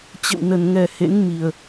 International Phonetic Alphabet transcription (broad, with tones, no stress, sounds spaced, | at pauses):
t͡ɕ ə̰˧˨ w n ə˨˩ n ŋ ɛ˨˩ h ḛ˧˥ ŋ m i˨˩ ə̯